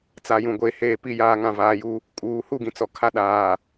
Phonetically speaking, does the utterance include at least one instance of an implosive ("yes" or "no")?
yes